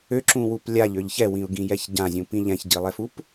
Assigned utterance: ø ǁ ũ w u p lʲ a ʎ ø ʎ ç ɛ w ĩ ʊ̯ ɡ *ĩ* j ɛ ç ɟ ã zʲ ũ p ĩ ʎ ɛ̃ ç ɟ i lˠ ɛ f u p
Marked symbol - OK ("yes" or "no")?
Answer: yes